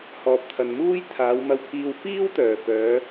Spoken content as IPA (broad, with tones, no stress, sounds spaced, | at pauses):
h ɔː˨ p̚ t̪ʰ ɐ˨ n m uː˥ j t̪ʰ aː˨˧ w m ɐ˧ w pʰ iː˧ w f iː˥ w t̪ œː˨˩ f œː˨˧